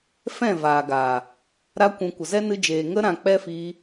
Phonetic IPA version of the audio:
f ɛ̃˦˨ v aː˨ ɡ aː˨ | ɾ a˧ kʷ ũ˨ kʷ ə˨ z ɛ˦ n ɨ˧ d͡ʒ eː˨ ŋ ə˧ ɾ ã˨ k͡p ɛ˦ f iː˧

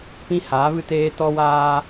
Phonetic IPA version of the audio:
p ĩ˦ h aː˨˦ v ɨ˦ t eː˦ t ɔ˦ w aː˦

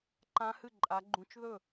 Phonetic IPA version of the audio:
ǃ ã˦˥ h ɨ˥˩ ǃʼ a˨˦ ɡ͡ǃ ũ˨˦ t͡ʃ ð ɵ˥˩

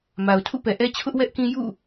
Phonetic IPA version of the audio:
m a˨ ʊ̯ tʰ ṵ˦˨ p ɛ˨ ʔ ɛ˦ t͡ɕʰ ʊ˦ ʔ w ɛ˦ ʔ k ĩ˦ j ṵ˦˨

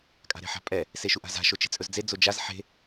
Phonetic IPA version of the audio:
kʼ a̤ ɾ e̤ ħ a̤ pʼ ɛ | s e ʃ u ʔ a̤ z a̤ ʃ o t͡ʃ e̤ t͡sʼ ɵ z d͡z e d͡z o d͡ʒ a z ħ e̤

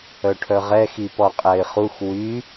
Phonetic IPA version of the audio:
œ ʈʰ œ ʁ ɛ x i p ɔ qʼ ɛ ɪ̯ χ u x w y

